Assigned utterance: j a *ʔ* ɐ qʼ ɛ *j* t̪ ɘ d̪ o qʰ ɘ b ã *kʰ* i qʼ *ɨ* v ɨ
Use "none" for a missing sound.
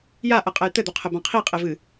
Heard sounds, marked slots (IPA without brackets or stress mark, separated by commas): ʔ, j, qʰ, e